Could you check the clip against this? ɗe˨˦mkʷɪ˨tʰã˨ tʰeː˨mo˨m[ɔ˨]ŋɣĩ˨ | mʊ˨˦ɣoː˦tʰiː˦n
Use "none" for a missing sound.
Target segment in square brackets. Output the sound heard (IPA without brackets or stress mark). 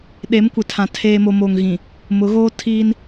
o˨